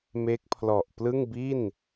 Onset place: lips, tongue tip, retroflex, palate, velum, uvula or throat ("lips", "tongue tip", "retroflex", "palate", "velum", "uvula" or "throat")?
lips